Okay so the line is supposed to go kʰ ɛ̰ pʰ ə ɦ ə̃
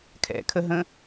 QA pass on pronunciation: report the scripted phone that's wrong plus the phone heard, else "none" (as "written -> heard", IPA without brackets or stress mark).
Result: pʰ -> kʰ